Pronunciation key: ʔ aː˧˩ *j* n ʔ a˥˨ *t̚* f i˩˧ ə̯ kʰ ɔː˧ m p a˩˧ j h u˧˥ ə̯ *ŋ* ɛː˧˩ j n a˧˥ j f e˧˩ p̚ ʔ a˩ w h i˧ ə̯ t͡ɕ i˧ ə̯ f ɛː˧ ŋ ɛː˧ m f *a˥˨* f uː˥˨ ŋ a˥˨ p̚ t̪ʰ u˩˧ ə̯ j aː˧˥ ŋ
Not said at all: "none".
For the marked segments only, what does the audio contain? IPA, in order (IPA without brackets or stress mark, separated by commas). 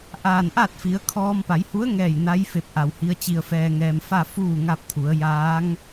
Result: none, t̚, ŋ, a˥˨